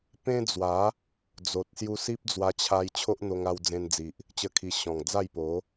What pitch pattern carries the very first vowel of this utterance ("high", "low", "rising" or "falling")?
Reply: high